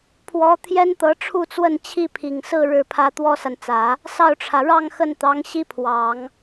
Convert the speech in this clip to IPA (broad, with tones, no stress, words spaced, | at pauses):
pʰwɔ˧˥ t̪ʰjɛ˥nt̪ɤ˧˥ʈ͡ʂʰu˥˧t͡swə˥˧n t͡ɕʰi˥˩pʰi˨˩ŋsɹ̩˥˧ ɻɻ̩˥˩pʰä˥ t̪wɔ˥sa˨nt͡sä˨˩˦ | sɑ˥˩ʊ̯ʈ͡ʂʰä˩ ɻɑ˥˧ŋxə˥˩nt̪ɑ˧˥ŋ ɕi˥pʰwɑ˨˩˦ŋ